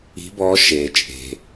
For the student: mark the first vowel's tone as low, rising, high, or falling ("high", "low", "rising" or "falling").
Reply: rising